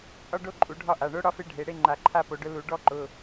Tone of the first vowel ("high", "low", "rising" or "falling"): falling